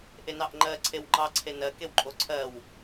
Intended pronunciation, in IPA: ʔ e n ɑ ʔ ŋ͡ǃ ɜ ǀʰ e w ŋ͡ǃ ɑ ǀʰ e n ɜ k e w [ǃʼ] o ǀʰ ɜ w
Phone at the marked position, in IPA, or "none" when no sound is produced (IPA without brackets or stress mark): ǃʼ